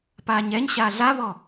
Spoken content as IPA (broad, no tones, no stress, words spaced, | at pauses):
paːɲɛɲɕaː ɮaβɔ